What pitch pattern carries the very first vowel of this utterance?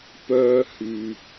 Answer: high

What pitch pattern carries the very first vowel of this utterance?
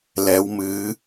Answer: rising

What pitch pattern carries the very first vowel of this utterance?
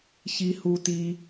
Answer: high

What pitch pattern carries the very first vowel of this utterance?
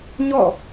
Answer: falling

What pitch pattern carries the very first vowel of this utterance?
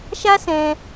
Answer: high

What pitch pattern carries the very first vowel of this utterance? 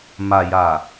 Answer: low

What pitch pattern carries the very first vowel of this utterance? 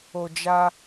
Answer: low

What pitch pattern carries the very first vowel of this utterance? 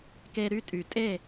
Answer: high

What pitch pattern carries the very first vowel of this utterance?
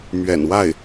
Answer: low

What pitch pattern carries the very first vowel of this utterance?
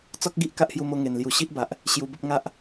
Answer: high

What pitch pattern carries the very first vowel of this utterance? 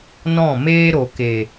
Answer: falling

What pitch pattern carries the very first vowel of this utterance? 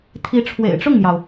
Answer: rising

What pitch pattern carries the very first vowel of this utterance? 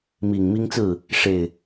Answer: low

